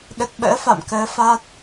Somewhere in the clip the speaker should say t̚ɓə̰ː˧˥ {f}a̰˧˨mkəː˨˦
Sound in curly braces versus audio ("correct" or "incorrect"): correct